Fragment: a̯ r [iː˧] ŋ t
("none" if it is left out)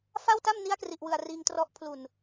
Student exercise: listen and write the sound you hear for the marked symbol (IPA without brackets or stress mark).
iː˧